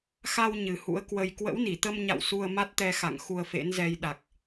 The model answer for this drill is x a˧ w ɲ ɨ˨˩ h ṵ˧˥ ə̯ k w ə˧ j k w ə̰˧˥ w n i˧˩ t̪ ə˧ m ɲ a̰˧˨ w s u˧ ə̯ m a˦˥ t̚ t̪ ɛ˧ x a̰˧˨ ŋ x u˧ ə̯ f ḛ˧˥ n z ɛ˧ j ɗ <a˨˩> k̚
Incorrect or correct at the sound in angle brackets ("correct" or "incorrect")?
correct